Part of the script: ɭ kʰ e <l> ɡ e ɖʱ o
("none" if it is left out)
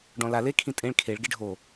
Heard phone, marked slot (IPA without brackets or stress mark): ɭ